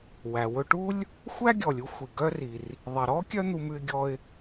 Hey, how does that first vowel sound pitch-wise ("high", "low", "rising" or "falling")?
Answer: low